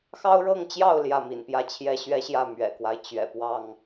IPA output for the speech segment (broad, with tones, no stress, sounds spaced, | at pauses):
x ɑ˦ ʊ̯ ɻ ɤ˥˨ ŋ t͡ɕ j ɑ˥˨ ʊ̯ l j ä˥˨ m ḭ˨˩ n p j ä˥˨ t͡ɕʰ j ɛ˦ ɕ ɥ ɛ˦ ɕ j ä˥˨ m ɥ ɛ̰˨˩ k w a˦ ɪ̯ t͡ɕ ɥ ɛ̰˨˩ p w ɑ˥˨ ŋ